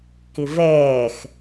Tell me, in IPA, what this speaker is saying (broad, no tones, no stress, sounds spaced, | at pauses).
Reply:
k ɪ v ɛː x